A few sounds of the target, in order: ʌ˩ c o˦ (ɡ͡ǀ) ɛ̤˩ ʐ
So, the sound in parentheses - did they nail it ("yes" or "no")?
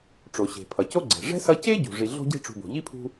yes